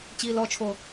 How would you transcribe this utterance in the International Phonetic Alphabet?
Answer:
t͡ɕiːlɔt͡ʃʰo

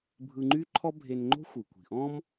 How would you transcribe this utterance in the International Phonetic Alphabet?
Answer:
bʱɯ˧ŋ͡ǃy˥ǃʰɔ˥ bʱe˧nŋ͡ǃo̤˥ xʷɨ˩kʷi̤˩ʔɔ̃˥m

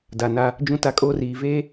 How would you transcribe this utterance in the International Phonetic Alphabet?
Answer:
da˨na˦ | d͡ʒũ˦ta˦kʼoː˦riː˨ veː˦

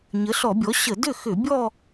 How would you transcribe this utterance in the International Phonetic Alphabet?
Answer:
ɲə˩˥ɬɔ˧˩˧bʲɔ˩˥ ɕə˧˩˧ dʏ˥˩ xʏ˧˩˧bʲɔ˥˧

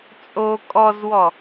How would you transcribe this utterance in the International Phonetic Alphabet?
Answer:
t͡sʼo kʼɔzwɔ

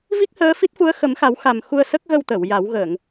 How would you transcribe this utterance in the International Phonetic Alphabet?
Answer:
vi˦˥k̚həː˧˥fi˦˥t̚fu˧˥ə̯ xə˨˩˦mxa˨˩˦w xa˨˩m xu˧ə̯sə˦˥k̚ɣə˧wt̪ə˨˩˨w ja˨˩˦wɣə˨˩˨ŋ

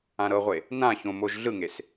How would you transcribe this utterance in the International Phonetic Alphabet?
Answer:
ãɾɤʁʷe | nã çõ moʒ ɮɯŋes

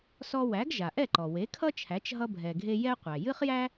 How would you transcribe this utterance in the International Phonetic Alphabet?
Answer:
sɔ˧wæ˩˥ɡ ʒa˩ʔɛ˥˩ǃɔ˩ we˩˥kʰʌ˥t͡ʃʰæ˩˥t͡ʃ ɦʌ˧bʱɛ˩ɡʱe˧ jɛ˥qʷæ˩ jɨ˥χjæ˥

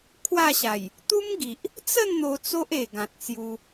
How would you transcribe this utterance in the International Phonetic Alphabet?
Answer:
kʰwa˥˧ɕa˨˩j | t̪u˦mɡi˨ʔ | t͡sə˥˧n n̪o˧t͡so˦ʔ e˨˩ɡã˨t̚t͡sju˧

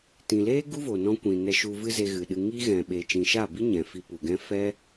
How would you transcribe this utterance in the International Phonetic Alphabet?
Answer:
tĩ˨leː˦ ɡu˦vo˨nɔ̃˧ kʷĩ˨ nɛ˧ʃu˧vɨ˦ ze˧ɣɨ˨ɗɨ˧ ŋi˦ ɣɛ̃˨ ɓe˨t͡ʃĩ˨ʃa˦˨bi˦ ɲɛ̃˨fi˧ pu˨ɡɛ̃˦ fɛ˦

